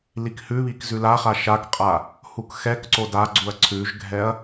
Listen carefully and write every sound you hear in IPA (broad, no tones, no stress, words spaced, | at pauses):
likhʉβik zʉlaχa ʃakqʼa | hukxɛkǀo daɡ͡ǀuɐ̯ ǀʰʉʒɡʱɛɐ̯